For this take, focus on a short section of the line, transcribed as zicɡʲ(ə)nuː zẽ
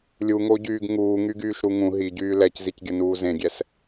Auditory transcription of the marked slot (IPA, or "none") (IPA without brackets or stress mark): ə